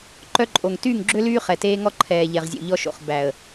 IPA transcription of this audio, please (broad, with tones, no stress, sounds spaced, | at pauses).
ǃ œ˦ ǃʼ o˨ ŋ t yː˦˨ ŋ ɡ͡ǁ ø˦ l yː˦ χ ɛ˨ t eː˦ ŋ ɔ˦ ǃʰ ɛː˨ ʎ ɛ˨ ʁ zʲ o̰˨ ʎ ɔ˦ ʃ o̰˨ χ b æ˨ ə̯